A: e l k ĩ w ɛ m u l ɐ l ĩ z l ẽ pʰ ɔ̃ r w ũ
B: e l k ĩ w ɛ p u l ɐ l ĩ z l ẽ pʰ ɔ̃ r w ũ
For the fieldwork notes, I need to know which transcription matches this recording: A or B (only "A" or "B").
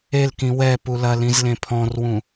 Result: B